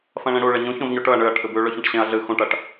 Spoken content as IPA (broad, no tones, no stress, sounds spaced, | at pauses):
f ɐ̃ ɭ ẽ ɽ u ɭ e ɲ ũ ç õ v ɲ o ʈ ɵ ɐ̯ ɳ ɨ ɐ̯ ʈʰ ɨ b ʉ ɭ ɵ ç ɐ̃ ʈ ɕ ẽ ɐ̯ ɮ ɨ x ũ ʈ ɐ ʈ